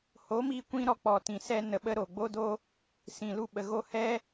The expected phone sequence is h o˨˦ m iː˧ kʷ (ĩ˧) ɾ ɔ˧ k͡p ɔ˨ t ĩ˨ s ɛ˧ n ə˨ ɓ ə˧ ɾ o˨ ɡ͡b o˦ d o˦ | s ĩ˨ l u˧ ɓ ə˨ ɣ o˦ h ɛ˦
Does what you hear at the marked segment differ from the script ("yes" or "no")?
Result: no